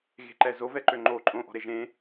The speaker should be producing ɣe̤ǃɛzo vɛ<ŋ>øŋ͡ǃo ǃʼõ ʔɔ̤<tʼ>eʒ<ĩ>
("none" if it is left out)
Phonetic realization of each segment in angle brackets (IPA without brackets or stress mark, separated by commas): ǃ, ɾ, ẽ